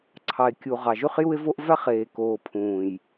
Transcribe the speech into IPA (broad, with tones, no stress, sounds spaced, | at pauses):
ǀʰ ɑ˨ e̯ kʲ u˨ ʁ ɑ˨ ʒ y˦ χ j u˦ e̯ v o˦ ʔ v æ˦ χ eː˨ k oː˨ pʰ ũː˨ j